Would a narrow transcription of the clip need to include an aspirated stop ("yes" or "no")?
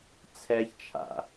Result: yes